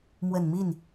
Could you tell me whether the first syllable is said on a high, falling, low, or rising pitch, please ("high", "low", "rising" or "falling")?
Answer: low